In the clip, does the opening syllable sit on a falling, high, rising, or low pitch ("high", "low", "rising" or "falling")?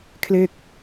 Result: falling